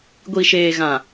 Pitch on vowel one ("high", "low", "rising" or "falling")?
low